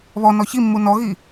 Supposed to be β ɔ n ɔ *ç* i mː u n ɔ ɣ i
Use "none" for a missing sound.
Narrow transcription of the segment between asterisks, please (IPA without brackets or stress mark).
ç